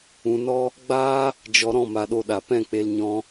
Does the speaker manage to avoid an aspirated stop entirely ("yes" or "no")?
yes